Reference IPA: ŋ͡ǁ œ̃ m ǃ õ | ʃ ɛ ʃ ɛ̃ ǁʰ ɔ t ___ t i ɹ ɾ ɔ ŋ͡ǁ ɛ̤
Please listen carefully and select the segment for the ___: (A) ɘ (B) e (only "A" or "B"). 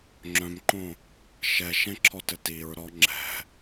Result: A